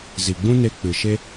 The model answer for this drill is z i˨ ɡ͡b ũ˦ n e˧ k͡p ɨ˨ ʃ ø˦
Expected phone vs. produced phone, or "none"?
ø˦ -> e˦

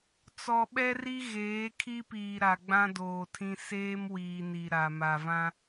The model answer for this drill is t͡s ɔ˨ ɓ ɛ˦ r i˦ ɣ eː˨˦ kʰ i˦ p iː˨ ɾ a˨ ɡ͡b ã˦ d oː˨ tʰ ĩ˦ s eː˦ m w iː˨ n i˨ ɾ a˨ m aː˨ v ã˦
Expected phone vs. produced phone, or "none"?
aː˨ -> a˨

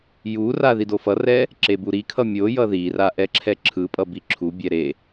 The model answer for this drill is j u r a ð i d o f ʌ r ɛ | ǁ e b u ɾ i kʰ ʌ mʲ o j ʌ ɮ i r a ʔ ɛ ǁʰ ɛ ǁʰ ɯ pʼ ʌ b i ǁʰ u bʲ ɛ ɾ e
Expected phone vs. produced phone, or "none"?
ɮ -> ð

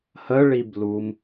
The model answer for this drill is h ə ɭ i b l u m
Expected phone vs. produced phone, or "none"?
none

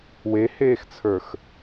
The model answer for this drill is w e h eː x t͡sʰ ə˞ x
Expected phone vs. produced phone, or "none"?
none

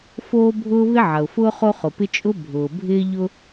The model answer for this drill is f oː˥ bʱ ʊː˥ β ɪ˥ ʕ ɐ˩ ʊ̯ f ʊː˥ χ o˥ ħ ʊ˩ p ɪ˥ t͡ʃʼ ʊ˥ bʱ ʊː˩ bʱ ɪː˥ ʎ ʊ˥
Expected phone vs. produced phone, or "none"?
ħ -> χ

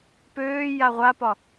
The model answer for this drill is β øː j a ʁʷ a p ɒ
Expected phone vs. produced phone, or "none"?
β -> p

